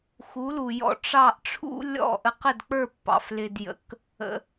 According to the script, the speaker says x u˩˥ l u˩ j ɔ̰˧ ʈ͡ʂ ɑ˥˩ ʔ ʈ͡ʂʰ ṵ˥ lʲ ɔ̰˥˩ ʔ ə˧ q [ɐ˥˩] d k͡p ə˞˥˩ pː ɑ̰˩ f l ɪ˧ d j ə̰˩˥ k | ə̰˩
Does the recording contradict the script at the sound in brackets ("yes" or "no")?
yes